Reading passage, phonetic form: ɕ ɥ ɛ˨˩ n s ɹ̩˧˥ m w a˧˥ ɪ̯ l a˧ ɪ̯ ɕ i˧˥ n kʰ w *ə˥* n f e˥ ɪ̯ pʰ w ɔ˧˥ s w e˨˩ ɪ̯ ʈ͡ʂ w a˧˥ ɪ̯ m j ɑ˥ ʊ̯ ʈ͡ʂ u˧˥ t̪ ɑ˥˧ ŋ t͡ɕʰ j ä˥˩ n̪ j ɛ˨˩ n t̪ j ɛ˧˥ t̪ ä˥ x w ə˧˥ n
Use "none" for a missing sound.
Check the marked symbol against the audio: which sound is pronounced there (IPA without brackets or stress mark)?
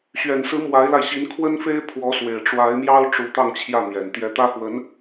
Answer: ə˥